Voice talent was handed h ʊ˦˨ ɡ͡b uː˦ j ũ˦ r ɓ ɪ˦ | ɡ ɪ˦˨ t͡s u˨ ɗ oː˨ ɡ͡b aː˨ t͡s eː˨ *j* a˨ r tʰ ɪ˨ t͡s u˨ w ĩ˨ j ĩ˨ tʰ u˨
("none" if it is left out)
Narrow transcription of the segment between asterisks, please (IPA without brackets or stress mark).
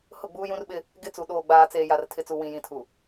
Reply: j